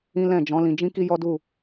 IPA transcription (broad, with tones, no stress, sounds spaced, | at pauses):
ĩ˦ l ɛ̃˦˨ d͡ʒ ɔ̃˨˦ l ĩ˧ d͡ʒ ĩ˦ k i˦ j ɔ˦ d u˦˨